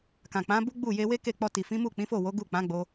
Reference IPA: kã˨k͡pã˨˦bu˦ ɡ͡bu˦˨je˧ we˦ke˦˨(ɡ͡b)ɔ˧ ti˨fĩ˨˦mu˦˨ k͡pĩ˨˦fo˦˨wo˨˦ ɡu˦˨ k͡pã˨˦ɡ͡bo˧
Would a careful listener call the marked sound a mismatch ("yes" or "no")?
yes